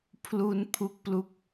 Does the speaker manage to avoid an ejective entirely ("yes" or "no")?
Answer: yes